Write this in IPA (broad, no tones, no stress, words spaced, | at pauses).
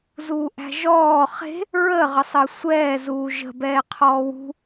zuːʔæ̤ʒɔː χe̤ | ɹə ʁəsˤəːsʷɛː zuːʒə̤ bɛːqʰɔːwṳ